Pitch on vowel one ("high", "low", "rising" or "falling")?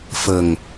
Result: low